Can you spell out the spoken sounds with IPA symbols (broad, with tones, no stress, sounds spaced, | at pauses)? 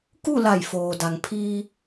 k u˥˨ l a˧˩ j f oː˩ d a˩ ŋ pʰ iː˧